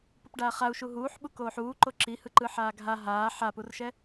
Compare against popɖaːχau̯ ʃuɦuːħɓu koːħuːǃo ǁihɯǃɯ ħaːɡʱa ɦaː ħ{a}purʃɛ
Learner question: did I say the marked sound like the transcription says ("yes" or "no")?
yes